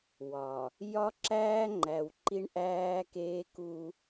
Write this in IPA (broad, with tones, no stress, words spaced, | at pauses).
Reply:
wɒ˨ | jɒ˦ǁæː˦ŋ͡ǃæ˨w ǃi˦ɳʔæː˦keː˦ ku˦